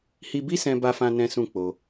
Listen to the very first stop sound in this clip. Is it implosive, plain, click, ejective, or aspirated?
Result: plain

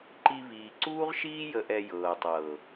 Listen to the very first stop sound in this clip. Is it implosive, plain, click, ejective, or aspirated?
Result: click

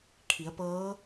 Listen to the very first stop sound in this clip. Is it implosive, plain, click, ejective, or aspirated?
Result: aspirated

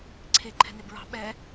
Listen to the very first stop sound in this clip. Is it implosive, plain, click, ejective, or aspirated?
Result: click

